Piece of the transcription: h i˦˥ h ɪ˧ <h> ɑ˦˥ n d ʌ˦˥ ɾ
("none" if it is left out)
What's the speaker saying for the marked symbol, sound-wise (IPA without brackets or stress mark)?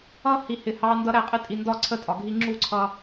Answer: h